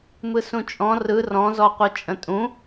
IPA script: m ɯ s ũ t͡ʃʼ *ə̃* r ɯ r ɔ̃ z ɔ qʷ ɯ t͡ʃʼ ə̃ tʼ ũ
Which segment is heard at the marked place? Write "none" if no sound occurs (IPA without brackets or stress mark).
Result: ɔ̃